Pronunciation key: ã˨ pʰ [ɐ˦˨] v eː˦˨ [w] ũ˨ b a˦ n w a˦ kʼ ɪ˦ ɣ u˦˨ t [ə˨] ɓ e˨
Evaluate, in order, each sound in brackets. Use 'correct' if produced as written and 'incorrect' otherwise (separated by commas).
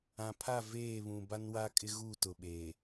incorrect, incorrect, incorrect